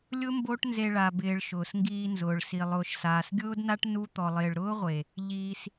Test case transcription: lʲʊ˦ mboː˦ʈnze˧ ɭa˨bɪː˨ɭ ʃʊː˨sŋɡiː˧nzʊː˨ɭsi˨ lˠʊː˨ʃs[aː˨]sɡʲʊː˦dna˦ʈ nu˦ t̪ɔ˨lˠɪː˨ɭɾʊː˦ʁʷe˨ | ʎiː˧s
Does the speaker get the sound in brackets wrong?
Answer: no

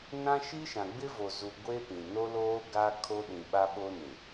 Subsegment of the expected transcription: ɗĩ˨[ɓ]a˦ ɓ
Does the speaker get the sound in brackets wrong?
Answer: no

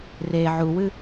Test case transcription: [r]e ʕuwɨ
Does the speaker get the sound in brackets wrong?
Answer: no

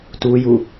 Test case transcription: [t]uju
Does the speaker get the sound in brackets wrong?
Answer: no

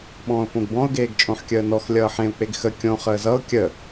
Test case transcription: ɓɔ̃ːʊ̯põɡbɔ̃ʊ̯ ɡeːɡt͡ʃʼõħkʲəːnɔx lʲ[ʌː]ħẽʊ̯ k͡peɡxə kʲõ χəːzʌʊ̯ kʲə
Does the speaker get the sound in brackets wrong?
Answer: no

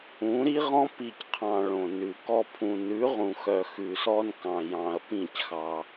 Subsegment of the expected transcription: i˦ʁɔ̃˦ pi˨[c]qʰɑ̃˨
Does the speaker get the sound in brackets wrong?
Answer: no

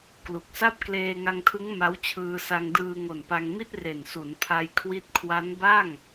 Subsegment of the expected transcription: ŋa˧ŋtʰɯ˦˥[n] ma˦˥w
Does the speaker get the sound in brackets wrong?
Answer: yes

